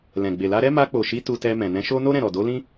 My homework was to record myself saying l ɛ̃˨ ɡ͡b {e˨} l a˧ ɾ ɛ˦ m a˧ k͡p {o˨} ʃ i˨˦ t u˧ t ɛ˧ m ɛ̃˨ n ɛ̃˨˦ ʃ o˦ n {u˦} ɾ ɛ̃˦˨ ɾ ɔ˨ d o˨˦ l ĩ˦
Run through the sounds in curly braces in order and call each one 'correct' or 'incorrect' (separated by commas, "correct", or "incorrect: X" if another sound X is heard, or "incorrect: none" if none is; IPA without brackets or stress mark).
correct, correct, incorrect: o˦